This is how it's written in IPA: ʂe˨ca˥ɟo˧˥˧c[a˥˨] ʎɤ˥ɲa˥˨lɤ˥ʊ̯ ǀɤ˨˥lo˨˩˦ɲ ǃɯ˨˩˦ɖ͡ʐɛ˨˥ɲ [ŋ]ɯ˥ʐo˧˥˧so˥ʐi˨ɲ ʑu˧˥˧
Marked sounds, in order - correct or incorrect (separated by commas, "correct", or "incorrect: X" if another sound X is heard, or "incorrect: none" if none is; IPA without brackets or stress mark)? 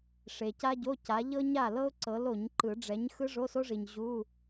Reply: incorrect: a˨˥, incorrect: x